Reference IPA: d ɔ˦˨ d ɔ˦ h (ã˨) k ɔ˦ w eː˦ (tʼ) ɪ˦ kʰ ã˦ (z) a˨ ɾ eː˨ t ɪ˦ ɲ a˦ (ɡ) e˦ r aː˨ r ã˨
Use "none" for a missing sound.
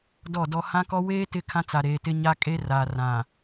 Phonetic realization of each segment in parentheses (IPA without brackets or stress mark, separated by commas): ã˦, t, t͡s, kʼ